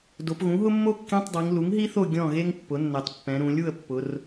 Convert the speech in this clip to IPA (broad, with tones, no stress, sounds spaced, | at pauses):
d o˩˧ p ɣ ũ˩˥ ɦ ʊ˥ mː o˥ kː ẽ˧˥˧ tˤ dˤ i˩˧ ŋ l u˩˥ ŋ ɦ i˥ θ o˥˨ ɡʲ ɔ̃˥˨ ɣ e˥ ŋ pː ʊ˩˥ nː ɛ˩˧ tˤ pː ɛ̃˩˧ ɾ ũ˩˧ lʲ u˥˨ ə̯ pː ʊ˩˧ r